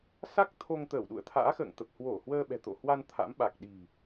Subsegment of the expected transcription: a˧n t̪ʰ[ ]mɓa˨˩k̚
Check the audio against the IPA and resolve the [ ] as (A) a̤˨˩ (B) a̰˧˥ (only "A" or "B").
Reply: B